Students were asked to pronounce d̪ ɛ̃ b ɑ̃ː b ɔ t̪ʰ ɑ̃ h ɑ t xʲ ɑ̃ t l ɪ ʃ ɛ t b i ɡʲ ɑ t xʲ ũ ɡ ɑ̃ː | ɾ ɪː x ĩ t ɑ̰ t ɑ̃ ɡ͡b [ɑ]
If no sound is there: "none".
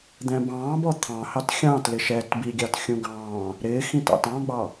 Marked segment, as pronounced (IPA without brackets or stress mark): ɑ